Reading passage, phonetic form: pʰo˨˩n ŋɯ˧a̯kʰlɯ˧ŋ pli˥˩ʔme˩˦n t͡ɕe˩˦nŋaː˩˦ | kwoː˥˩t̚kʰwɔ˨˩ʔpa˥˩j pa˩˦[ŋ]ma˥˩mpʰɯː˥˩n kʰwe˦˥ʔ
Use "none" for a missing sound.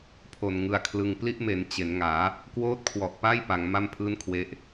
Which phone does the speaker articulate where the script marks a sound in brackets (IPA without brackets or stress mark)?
ŋ